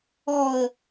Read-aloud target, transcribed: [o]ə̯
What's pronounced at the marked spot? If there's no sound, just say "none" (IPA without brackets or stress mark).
ɔ